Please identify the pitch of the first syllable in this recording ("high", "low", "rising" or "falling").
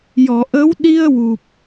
low